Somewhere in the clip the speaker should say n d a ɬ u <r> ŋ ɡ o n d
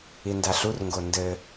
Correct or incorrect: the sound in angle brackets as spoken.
correct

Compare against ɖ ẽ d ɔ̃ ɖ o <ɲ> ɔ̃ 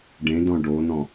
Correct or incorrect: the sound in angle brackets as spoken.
incorrect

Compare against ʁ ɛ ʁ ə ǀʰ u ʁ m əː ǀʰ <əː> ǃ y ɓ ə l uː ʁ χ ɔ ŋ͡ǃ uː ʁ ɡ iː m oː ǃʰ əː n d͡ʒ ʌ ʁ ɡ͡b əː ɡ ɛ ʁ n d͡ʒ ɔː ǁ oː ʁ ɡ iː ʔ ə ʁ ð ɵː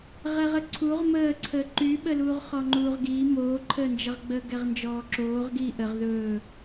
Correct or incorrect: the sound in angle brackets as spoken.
correct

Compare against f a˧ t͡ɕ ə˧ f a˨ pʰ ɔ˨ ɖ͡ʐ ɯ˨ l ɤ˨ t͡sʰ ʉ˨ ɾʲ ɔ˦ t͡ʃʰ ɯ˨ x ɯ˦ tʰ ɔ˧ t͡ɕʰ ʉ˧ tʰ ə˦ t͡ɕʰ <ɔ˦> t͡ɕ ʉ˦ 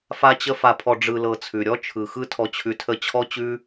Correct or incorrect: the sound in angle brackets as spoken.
correct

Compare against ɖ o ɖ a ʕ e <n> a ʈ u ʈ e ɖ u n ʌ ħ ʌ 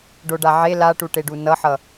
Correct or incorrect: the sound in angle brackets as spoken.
incorrect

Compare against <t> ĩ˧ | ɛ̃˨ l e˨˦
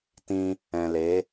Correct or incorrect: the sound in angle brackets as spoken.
correct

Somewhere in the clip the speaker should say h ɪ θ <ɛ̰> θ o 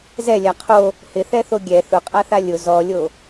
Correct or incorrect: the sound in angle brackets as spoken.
incorrect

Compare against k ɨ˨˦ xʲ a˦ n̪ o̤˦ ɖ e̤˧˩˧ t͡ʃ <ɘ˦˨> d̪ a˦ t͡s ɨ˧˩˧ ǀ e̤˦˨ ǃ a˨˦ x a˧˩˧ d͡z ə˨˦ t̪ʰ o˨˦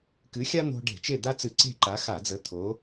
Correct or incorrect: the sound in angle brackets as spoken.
incorrect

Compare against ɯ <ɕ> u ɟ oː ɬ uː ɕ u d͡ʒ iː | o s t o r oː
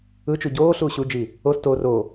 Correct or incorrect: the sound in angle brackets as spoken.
incorrect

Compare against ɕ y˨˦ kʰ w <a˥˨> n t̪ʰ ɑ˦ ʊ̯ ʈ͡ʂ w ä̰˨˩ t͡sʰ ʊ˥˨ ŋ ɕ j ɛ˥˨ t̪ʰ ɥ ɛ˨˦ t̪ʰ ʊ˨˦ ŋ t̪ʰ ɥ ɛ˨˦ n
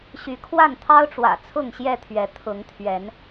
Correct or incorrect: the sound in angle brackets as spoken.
correct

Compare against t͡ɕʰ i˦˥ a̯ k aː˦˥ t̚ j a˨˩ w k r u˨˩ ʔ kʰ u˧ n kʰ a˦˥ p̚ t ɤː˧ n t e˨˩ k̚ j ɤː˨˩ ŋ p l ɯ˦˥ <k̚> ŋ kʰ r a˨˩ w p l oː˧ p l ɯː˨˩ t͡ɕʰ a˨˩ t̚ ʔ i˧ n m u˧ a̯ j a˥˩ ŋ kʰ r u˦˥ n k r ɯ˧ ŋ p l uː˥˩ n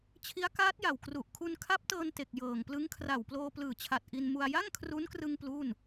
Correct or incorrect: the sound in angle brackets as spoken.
incorrect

